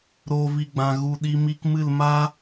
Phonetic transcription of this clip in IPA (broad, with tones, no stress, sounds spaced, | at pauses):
ɾ oː˨ v i˨ ɡ͡b ã˨ ɣ u˨ ɗ i˧ m i˧ k m ɨ˦˨ l m a˦